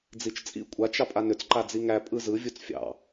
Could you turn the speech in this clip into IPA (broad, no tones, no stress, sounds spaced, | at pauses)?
d͡z i t͡ʃ t͡sʼ ḭ kʷʼ a t͡ʃ ɑ pʼ a n ʏ t͡s ǃ a d͡z i ŋ æ pʼ ɯ z ɯ vʲ u t͡s fʲ ɑ̰